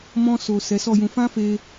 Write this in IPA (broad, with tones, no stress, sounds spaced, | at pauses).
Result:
m ɔ̃˧ s o˨ s ɛ˨˦ s ɔ˦˨ j ũ˧ f ã˦ f e˧